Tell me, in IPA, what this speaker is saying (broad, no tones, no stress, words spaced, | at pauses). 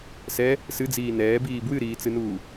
sɛ | sɨd͡ziː nɛːbiː bwɨɾiːt͡sɨnuː